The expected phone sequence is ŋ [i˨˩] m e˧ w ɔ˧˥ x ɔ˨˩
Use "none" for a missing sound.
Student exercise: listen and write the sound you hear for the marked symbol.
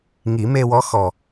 i˨˩˦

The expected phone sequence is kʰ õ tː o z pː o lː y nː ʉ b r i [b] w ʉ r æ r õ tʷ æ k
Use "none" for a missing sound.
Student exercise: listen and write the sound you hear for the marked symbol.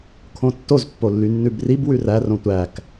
b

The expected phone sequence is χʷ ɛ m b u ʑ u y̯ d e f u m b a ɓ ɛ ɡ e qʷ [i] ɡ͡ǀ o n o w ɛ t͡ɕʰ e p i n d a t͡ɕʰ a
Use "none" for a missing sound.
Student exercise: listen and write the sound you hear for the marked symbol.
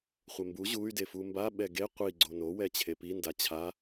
i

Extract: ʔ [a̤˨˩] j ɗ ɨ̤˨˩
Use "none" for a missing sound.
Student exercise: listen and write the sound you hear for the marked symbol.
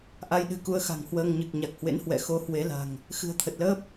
a˧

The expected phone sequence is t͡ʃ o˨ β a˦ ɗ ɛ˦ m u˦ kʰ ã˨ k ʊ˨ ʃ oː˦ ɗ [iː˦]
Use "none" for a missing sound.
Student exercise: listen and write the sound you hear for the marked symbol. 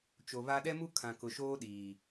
iː˨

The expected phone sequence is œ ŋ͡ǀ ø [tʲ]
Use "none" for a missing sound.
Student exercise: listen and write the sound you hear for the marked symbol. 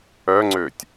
tʲ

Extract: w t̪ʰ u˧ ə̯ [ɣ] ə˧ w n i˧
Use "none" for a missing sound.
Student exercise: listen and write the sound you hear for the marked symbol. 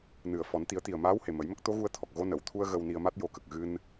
ɣ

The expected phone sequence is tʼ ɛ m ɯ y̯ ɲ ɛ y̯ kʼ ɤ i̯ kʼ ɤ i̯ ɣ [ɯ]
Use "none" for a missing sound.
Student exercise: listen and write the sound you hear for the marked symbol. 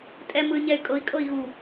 u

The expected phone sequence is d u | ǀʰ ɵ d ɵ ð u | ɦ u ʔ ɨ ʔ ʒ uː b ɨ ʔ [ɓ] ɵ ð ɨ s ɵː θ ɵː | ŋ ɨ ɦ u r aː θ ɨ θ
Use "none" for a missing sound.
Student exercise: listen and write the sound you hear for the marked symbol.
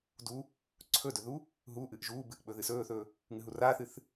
ɓ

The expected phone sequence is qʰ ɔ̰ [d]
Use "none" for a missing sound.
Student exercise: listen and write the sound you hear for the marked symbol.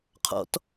t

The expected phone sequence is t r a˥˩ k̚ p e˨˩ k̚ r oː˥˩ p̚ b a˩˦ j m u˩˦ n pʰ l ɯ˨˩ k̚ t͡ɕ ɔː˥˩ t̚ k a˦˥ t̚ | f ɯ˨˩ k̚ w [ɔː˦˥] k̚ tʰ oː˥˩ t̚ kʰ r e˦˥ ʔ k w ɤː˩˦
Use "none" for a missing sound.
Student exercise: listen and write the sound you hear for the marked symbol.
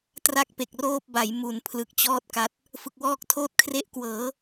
ɔː˦˥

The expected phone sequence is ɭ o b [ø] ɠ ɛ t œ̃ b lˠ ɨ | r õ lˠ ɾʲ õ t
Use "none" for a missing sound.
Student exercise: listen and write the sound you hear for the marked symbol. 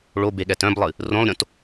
e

